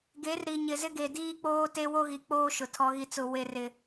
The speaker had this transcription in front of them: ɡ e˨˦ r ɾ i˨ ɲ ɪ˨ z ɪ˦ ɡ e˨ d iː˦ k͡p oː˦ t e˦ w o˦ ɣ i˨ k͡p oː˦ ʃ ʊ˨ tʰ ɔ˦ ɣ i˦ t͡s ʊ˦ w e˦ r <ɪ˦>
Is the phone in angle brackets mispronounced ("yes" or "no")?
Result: no